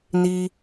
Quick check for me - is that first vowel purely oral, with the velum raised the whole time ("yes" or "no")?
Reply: yes